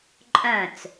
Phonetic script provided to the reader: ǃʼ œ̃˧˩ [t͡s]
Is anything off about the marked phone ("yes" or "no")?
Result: no